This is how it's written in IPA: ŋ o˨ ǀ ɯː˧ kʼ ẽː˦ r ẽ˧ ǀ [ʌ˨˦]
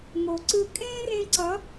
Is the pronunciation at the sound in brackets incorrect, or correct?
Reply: correct